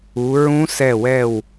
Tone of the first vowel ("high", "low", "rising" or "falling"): rising